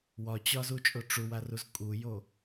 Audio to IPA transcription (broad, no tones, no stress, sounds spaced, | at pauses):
w ɒ t͡ɕ ɒ z u t͡ʃʼ o ʈ͡ʂ u w a r u z kʼ u j o